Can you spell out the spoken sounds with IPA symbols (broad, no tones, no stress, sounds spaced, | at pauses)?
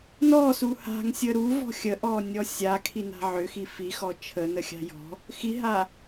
n ɔ s u h a̤ ŋ sʲ ə ɾ u v ɔ̤ xʲ ə ʔ ɔ nʲ ɔ sʲ a kʰ i n a̤ ʕ ʏ x i f i x ɔ t͡ʃʰ ə n ə xʲ a̤ j ɔ̤ | x i ɦ a